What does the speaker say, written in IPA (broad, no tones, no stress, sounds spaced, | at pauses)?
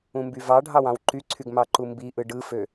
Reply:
ũ m b y v ɑ ɖʱ ɑ w ɑ̃ w ǃ y ǀʰ y ɡ m ɑ ǃ u m b i ʔ ɯ ɖ ɯ f ø